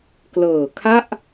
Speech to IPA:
klɤː˨˩kʰa˥˩ʔ

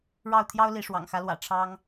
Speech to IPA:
ɻɑ˥˨ʊ̯ t̪ʰjɑ˦ʊ̯li˨˦ ʂwɑ̰˨˩ŋxä˨˦lwä̰˨˩ ʈ͡ʂʰɑ˦ŋ

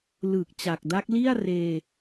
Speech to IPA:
lɯː˨˩k̚ t͡ɕa˨˩k̚da˦˥k̚ li˥˩a̯ reː˧

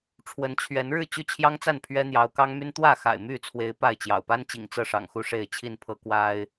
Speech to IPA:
ʈ͡ʂʰwə˨˦nt͡ɕʰɥɛ˨˦nɻɻ̩˥˨ t͡ɕy˥˨t͡ɕʰjɑ˦ŋt͡sa˥˨n pʰɥɛ˦n̪jɑ˨˦ʊ̯kɑ˦ŋmy˦n t̪wä˥˨xa̰˨˩ɪ̯my˥˨t͡sʰwe˨˦ɪ̯ pa˥˨ɪ̯t͡ɕjɑ̰˨˩ʊ̯ pa˦nt͡ɕḭ˨˩ŋ t͡sɤ˥˨ʂɑ̰˨˩ŋxu˥˨ ʂe˥˨ɪ̯t͡ɕʰi˥˨npʰɤ˦ kwa˦ɪ̯

